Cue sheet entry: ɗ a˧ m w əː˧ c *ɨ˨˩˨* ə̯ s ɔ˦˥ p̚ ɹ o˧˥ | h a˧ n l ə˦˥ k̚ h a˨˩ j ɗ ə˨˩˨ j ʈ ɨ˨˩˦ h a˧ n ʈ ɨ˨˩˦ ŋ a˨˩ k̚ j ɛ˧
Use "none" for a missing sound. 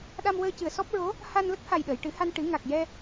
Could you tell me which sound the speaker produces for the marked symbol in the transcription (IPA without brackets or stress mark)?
ɨ˨˩˨